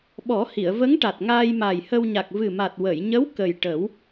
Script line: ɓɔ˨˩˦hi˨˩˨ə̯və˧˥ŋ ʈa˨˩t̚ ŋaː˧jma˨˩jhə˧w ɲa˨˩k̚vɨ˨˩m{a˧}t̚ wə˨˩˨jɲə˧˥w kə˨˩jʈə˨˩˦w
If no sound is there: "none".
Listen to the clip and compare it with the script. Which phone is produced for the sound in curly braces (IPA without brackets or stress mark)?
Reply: a˨˩